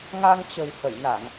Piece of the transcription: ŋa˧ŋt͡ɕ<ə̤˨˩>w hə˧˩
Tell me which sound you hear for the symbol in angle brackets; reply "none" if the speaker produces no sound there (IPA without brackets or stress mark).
ə̤˨˩